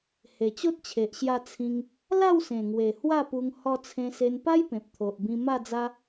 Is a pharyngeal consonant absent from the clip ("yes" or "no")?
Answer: yes